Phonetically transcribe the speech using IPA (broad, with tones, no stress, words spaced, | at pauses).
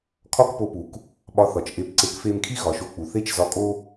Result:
kʰɒ˥kpo˧pu˩k | ɓɒ˧θɒ˩t͡ʃ ʔe˧pǀe˧k fe˧mkʰi˥ ɣɒ˩ʃo˧k͡pu˩ θe˥t͡ʃzɒ˧kʼo˥